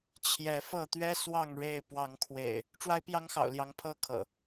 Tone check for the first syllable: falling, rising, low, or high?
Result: rising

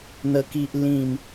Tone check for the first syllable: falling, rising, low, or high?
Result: low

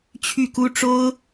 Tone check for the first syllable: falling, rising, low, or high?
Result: falling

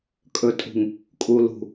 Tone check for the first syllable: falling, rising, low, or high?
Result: low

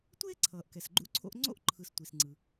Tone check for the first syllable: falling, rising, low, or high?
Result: high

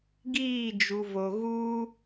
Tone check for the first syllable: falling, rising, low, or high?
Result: falling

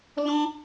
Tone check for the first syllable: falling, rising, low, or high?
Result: high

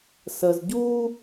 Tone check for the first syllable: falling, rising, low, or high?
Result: low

